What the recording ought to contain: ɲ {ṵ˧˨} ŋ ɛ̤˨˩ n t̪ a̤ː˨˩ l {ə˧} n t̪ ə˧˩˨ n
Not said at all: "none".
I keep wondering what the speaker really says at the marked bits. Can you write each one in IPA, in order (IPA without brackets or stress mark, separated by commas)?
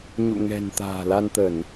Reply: ṵ˧˨, a˧